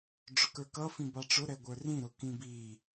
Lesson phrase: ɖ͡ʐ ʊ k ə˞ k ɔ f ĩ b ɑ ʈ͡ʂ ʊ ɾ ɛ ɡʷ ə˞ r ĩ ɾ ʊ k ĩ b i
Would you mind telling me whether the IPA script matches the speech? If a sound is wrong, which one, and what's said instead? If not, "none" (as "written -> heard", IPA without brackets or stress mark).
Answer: ɔ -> ʌ